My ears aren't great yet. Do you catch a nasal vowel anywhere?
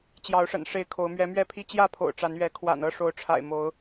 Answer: no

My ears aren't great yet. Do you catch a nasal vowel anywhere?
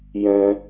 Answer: yes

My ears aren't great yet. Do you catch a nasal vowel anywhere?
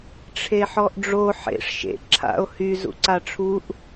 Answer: no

